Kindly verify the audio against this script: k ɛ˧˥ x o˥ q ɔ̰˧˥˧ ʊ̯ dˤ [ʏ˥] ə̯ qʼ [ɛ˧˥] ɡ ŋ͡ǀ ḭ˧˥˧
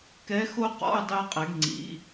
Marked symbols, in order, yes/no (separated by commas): no, yes